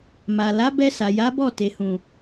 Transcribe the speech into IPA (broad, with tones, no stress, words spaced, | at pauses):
ma˨ la˨˦bɛ˧sa˨ ja˨˦bɔ˦˨te˨hũ˨